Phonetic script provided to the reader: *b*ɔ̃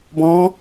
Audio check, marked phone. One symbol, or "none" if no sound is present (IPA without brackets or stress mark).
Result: b